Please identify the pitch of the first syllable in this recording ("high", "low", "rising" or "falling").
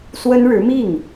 high